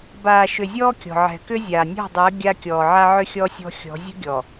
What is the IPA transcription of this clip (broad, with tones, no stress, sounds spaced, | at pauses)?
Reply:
b aː˨ ʃ ʏ˨ zʲ ɔː˦ kʲ ɔ̤˨ ʕ ɛ̤˨ k ʏ˦ zʲ aː˨ nʲ ɔ̤˦˨ dˤ əː˨˦ ɡʲ a˦ kʲ ɔː˨ ʕ a˦ ʕ ʏ˦ xʲ ɔ˦ sʲ ɔ̤˦ xʲ ɔ̤˨˦ zʲ ə̤˦ ɡʲ ɔ˨